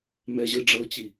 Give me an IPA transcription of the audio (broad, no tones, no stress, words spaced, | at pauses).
mɛʑɯ ɖ͡ʐɤt͡ɕi